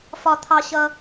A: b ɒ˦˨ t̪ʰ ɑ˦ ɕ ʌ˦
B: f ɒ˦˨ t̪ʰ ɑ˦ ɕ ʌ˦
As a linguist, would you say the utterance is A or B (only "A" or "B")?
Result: B